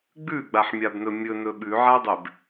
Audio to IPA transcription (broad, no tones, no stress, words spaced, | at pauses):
ɡ͡bʉɡ͡baħmʲabnɵ mʲɵnɵ ɓʉʕadˤeb